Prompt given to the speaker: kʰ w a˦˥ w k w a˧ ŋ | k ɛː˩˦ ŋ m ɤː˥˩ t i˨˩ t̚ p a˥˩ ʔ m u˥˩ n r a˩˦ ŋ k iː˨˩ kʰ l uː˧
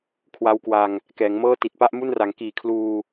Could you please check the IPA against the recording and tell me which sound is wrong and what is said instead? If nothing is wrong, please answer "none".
none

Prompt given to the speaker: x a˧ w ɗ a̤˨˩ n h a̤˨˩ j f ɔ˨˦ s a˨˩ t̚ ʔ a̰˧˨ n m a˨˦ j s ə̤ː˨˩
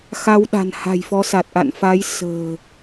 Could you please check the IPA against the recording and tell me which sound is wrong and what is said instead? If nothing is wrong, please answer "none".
m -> f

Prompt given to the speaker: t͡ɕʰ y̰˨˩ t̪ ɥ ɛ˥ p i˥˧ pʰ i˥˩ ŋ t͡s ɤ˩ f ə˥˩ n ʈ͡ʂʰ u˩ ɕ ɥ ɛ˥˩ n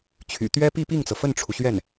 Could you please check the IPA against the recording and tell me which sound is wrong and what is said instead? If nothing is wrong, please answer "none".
pʰ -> p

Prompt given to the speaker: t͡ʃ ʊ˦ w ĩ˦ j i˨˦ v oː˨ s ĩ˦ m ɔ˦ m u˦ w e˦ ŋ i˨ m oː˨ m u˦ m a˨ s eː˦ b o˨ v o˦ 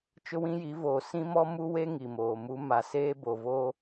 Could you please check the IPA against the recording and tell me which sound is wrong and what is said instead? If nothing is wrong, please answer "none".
none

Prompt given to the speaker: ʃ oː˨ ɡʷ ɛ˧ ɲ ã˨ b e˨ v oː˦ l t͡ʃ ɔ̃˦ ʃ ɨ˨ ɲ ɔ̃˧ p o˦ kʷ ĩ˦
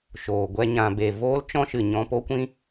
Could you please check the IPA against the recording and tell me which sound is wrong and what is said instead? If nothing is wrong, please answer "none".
none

